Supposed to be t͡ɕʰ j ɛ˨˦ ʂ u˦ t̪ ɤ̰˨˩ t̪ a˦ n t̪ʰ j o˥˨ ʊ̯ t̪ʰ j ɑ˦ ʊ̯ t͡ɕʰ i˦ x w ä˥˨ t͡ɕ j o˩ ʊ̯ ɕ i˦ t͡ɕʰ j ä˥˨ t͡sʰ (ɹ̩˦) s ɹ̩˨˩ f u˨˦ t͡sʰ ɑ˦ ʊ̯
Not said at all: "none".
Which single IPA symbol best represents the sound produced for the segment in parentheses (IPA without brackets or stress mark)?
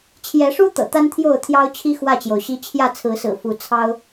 ɹ̩˨˦